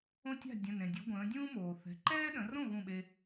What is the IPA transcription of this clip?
õ˦ tʲ a̤˥˩ dʲ ə̃˩˧˩ n ẽ˩ dʲ u˩˧ ɡʷ ə̃ː˩˧ dʲ ũː˦ m oː˩ θ ɛ̤˩˧˩ ǃ ɛː˦ ɗ ə̃˩˧ r õ˥˩ ɣ ũ˥˩ ɓ e˦

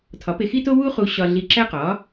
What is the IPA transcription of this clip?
tʰ ɒ˩˥ p e˧ x i˥ t o˥ w u˥ χ u˧ ɕ ɒ˧ ɮ i˧ ǁ æ˥ q ɒ˩˥

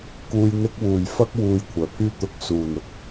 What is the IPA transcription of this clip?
k uː˨ j n̪ ɪ˧ k̚ w uː˨˩ j f ɐ˥ k̚ w uː˧ j kʷʰ œː˨˩ pʰ yː˥ t̪ ʊ˧ k̚ s uː˨˩ n ʊ˨ k̚

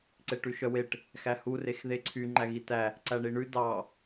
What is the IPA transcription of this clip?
ǀ e ʈ ʉ ʃ œ w e ʈ | x æ h u r e x ð e ǀʰ y ŋ͡ǃ æ ɣ i t æ | ǀ æ ɳ i ɳ ʉ d ɑ

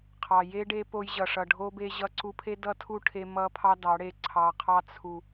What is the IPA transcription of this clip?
qʰ ɑ˨ j e˦ ɖ e˦ p o˧ j ʑ ʌ˨ ʂ ʌ˨ ɖʱ o˧ b e˧ ʑ ʌ˧ ǀ u˧ pʰ e˦ d ʌ˦ tʰ u˦ ʈʰ e˧ m ʌ˦ pʰ ɑ˦ d ɑ˨˦ ɽ e˧ ǀʰ ɑ˨ qʰ ɑ˧ t͡sʰ u˨

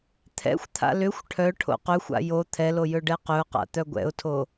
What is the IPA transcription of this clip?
t̪ʰ ɛ̰ xʷ t̪ʰ a̰ l ʏ xʷ ʈʰ œ ʈʰ o̰ q ɵ xʷ a̰ j o t̪ʰ ɛ l o j ɵ ɖ ɛ q ɵ ʊ̯ q a̰ t̪ œ ɡʷ ɛ̰ ʊ̯ tʰ o

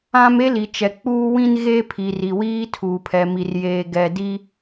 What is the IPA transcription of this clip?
ã˦ m e˦ l i˨ t͡ʃ ɛ˨ k͡p uː˦ w ĩ˦ n ɣ eː˦ pʰ i˨ r i˨ w iː˦ tʰ uː˨ pʰ ɛ˨ m i˨ r j eː˨ ɡ ɛ˨ d i˦

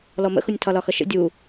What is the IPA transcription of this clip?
l ɔ m ə̰ x ʊ nʲ tʰ ɒ l ɒ x ʌ ʃ ə̰ dʲ u

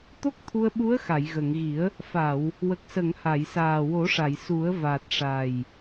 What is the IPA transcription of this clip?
t̪ o˦˥ k̚ t̪ʰ u˧ ə̯ ɓ u˧˥ ə̯ x a˨˩˨ j ɣ ə˨˩˨ ŋ ɣ i˨˩˦ ə̯ | f a˨˩˨ w | w ə˨˩ k̚ s ə˨˩˨ ŋ h a˨˩˨ j s aː˨˩ w o˨˩˦ ʂ a˨˩˨ j s u˨˩˦ ə̯ v a˨˩ t̚ ʂ a˨˩ j

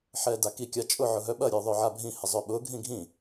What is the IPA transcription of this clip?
ħ ɛː d a k i kʲ a t͡ʃʼ ʊ ʕ ʊ ɦ œ ɓ ɐ ɾʲ œ ðˤ œ ʕ a bʱ ĩ h ɪ zˤ œ ɓ ʊː ɡʱ ĩ ɡʱ ĩ

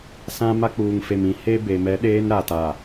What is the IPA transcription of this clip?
s ã˦ m a˦ k͡p uː˨ ŋ f e˨ m ĩ˨ h e˦ b e˨ m ɛ˨˦ ɗ eː˦ n ɾ a˨ t a˨

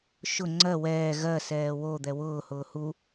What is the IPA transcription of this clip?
ʃ ʊ ŋ͡ǀ ɜ w ɛː ɣ ɜ s ɛː w o d̪ ɛ w ʊː h ʊː h u

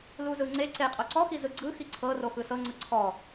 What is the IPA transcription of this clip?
l u z ɯ ŋ͡ǀ e ǀ e qʼ o ǀ ɔ x i z ɯ ɡ͡ǀ ɯ x i ǀʰ ɤ r o x ɯ s ɤ ŋ͡ǀ ɯ ǀʰ ɔ

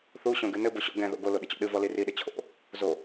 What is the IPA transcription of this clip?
θ u ɕ õ ɡ ɨ n ɘ b o ɕ ɔ̰ ɡ ɛ̃ ð o̰ ɡ o l o ɗ ɨ t͡ɕ ɔ̰ ɗ ɨ v ɔ l i r i ɗ ɘ t͡ɕʰ o̰ | z o

